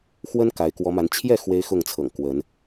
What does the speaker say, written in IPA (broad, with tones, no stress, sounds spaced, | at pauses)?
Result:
x w ə˦ n k a˨˦ ɪ̯ k w ɔ˨˦ m a˨˦ n t͡ɕʰ j ɛ˥˨ x w e˦ ɪ̯ x ʊ˥˨ ŋ t͡sʰ ɤ̰˨˩ ŋ k w ə˨˦ n